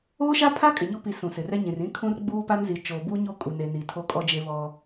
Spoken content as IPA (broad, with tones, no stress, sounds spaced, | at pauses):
oː˦ ʃ a˦ pʰ a˦ kʼ ɪ˨ ɲ o˦ p i˨˦ s ũ˨ s ɪ˨ r ɛ˦ ɲ ĩ˨ r ĩ˦ kʰ ũ˦ r ɡ͡b uː˦ p a˦ n z i˨ t͡ʃ oː˨ b uː˦ ɲ o˦ kʼ u˨ n e˨ n i˨ tʰ o˦ kʼ ɔ˦ d͡ʒ e˦ β ɔ˦